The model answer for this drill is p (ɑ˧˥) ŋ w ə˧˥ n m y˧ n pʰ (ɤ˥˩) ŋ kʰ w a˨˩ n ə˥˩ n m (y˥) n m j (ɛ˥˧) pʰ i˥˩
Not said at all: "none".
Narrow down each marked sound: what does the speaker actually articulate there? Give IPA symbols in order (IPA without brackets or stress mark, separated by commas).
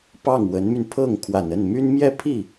ɑ˥˩, ɤ˥˩, y˥, ɛ˥˧